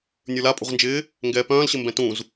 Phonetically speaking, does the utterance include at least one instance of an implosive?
no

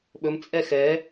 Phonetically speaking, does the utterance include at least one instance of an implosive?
yes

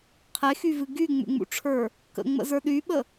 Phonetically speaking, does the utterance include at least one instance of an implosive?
yes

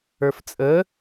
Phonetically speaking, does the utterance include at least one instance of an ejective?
yes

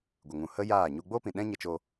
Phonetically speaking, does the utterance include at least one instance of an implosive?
yes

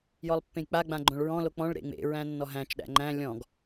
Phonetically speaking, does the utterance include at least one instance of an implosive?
yes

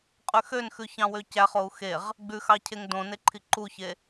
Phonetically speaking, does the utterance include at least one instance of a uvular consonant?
yes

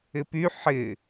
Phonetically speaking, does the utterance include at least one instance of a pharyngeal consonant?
yes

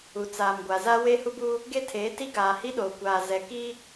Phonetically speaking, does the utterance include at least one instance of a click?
no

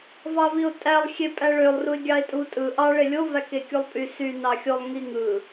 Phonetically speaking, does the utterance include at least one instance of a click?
no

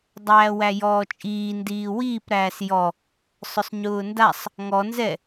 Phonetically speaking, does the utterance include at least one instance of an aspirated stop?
no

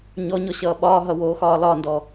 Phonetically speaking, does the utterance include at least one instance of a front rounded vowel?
no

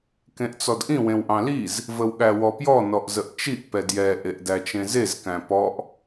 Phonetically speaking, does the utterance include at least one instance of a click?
no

